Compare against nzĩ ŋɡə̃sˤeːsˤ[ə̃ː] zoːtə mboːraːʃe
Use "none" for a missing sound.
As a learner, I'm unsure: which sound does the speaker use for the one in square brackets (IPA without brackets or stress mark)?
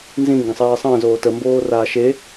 ə̃ː